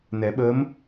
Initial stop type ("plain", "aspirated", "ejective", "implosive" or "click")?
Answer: implosive